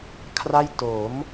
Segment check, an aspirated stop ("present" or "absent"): present